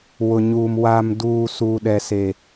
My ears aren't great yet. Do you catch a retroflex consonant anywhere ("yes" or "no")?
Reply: no